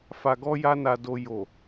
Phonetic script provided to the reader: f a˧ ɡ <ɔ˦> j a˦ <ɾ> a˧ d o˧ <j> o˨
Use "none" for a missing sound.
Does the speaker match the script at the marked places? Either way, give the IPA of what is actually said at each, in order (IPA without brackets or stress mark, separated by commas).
ɔ˦, n, j